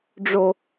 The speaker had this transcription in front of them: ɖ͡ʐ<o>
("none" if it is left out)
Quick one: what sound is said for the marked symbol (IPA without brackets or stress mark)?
o